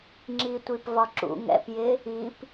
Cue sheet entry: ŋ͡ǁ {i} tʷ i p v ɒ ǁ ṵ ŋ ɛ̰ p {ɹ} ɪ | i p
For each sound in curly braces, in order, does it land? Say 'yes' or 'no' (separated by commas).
yes, no